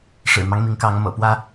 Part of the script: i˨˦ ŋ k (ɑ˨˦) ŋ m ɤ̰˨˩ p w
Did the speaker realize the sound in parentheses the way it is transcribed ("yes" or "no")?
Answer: yes